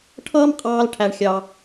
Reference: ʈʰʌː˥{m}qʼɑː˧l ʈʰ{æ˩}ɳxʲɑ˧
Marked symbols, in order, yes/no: yes, no

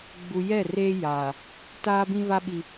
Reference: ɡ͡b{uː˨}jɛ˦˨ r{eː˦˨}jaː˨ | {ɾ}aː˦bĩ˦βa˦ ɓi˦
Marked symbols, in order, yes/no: no, no, no

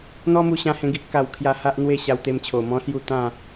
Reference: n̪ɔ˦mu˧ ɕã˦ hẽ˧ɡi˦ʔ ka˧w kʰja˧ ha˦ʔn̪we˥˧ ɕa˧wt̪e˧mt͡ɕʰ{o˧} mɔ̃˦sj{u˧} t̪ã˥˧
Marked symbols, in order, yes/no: no, no

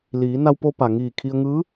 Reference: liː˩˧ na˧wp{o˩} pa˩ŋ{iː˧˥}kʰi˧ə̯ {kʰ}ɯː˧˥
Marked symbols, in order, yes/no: no, no, no

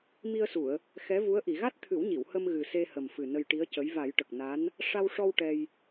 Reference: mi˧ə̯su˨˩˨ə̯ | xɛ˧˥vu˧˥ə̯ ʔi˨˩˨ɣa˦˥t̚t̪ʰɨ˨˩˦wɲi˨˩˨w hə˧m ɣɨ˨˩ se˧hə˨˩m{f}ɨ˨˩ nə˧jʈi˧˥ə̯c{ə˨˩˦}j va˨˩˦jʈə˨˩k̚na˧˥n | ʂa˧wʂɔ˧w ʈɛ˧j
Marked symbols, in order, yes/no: yes, no

